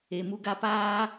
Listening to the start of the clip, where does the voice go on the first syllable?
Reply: low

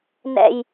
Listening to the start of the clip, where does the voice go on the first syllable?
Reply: low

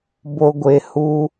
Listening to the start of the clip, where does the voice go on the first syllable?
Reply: low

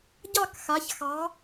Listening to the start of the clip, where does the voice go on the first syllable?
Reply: falling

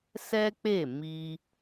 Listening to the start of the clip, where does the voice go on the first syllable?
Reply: high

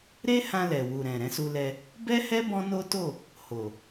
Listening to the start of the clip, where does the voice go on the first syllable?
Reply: high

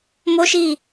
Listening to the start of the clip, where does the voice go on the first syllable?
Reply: high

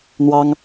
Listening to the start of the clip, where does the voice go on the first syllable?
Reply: high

